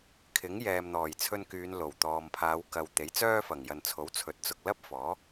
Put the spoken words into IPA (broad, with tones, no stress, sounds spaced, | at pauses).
kʰ ɪ˨˥ ŋ j ɛː˨ m n̪ ɔː˨˩ j t͡sʰ ɵ˧ n k yː˨˧ n l o˨˩ w t̪ ɔː˨ m pʰ aː˨˧ w k ɐ˨ w t̪ e˨˥ j t͡s œː˥ f ɐ˨˩ ŋ j ɐ˨ n t͡sʰ o˨˥ w t͡sʰ ɵ˨˥ t̚ t͡s ʊ˨ k̚ l ɐ˥ p̚ f ɔː˨˥